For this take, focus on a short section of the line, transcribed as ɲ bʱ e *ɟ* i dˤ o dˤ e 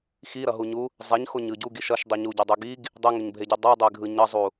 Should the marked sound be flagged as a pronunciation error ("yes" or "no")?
no